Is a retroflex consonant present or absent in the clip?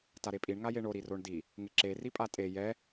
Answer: present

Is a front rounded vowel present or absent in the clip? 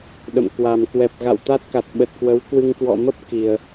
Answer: absent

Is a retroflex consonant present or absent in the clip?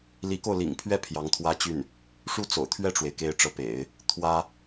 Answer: present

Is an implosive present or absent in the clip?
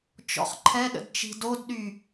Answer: present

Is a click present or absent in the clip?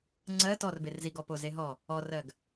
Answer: present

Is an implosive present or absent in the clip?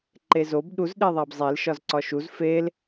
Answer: present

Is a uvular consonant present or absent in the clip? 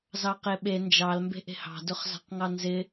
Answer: present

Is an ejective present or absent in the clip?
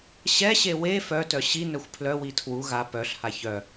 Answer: absent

